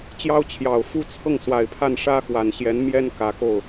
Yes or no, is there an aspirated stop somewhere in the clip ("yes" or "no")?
yes